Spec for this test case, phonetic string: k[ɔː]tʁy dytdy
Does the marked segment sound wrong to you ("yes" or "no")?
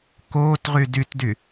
yes